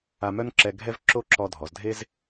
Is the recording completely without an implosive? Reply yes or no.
yes